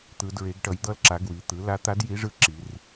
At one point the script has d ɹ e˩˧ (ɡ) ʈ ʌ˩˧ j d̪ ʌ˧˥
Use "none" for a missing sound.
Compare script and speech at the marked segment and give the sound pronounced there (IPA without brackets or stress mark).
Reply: ɡ